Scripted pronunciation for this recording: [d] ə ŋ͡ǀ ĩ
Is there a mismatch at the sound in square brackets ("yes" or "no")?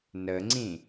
yes